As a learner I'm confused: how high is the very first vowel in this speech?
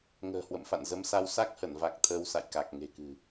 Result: mid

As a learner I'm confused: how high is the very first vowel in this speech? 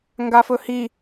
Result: low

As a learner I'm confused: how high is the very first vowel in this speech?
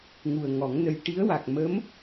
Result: high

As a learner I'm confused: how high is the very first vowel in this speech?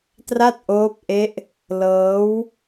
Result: low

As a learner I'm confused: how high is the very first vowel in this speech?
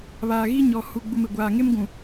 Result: low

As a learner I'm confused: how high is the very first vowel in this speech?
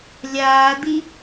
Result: low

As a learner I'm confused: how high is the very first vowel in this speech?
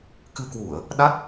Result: high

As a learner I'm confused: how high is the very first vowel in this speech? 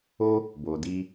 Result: mid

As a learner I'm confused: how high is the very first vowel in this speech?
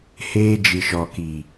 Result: mid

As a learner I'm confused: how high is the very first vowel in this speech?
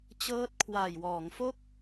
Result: mid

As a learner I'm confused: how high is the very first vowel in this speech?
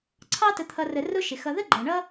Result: low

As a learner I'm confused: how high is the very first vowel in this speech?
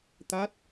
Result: low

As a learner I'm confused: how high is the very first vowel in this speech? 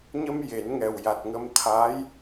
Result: mid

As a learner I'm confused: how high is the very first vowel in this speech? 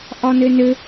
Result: low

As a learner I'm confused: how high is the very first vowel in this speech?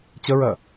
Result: mid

